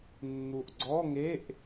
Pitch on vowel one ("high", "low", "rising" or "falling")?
low